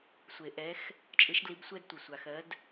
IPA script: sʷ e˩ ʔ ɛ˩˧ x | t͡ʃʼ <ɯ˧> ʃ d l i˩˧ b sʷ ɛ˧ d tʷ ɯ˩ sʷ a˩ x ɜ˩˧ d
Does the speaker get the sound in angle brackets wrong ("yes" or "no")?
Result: yes